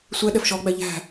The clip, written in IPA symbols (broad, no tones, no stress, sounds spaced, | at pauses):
sʷ ɛ ɗ ɛ f ʃ ɔ ɡ͡b æ ʎ æ̤